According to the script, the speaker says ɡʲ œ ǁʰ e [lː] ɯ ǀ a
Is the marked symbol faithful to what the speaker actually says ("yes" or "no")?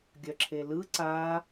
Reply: no